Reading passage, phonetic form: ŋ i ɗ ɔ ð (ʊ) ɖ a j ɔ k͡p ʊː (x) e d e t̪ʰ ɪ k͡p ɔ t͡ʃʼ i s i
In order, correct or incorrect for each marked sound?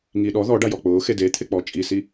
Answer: incorrect: ɔ, correct

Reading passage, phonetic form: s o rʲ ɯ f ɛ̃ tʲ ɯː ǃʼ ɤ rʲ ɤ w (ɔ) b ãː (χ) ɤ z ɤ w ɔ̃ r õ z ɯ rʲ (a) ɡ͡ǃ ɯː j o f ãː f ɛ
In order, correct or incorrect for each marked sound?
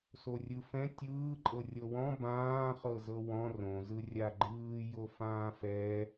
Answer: incorrect: ɔ̃, correct, correct

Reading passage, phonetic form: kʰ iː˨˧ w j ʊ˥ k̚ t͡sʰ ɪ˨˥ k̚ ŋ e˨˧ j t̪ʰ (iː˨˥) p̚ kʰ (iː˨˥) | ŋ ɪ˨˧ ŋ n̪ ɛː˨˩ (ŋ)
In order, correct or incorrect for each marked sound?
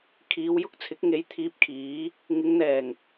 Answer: incorrect: iː˧, correct, correct

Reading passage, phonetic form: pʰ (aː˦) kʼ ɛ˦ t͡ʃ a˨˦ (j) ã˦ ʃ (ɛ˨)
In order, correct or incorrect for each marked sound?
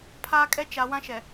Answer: correct, incorrect: w, correct

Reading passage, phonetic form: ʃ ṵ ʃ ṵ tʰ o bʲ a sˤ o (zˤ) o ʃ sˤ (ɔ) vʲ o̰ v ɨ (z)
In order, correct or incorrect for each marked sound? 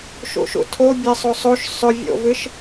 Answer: incorrect: sˤ, incorrect: ɵ, incorrect: ʃ

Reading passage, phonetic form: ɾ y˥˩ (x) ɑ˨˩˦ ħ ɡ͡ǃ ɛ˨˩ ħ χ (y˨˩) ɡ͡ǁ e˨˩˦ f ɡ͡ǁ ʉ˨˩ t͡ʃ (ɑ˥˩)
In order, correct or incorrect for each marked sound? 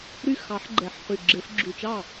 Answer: correct, correct, correct

